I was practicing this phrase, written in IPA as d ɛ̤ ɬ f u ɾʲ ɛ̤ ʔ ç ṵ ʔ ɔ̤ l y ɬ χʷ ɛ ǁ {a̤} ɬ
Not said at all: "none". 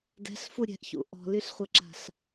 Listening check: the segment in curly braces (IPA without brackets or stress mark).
a̤